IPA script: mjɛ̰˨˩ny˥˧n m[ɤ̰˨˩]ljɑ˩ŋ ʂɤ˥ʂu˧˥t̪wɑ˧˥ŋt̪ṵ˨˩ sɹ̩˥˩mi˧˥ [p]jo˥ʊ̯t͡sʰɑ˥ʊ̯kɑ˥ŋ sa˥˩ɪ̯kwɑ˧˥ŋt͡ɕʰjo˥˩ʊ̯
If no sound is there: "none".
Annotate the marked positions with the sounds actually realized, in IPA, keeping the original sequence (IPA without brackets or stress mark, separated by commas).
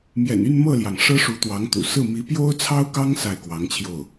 ɤ˥˩, p